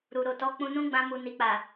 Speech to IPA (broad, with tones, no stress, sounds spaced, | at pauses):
ɾ u˨ ɾ o˨ t ɔ˨˦ k͡p ũ˧ n ũ˦ ɡ͡b ã˧ m u˨ n i˨ k͡p a˨